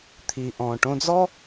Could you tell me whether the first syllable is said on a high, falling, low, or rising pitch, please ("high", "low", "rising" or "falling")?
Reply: low